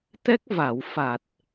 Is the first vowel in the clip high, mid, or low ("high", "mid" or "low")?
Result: mid